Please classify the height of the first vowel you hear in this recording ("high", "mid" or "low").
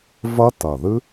low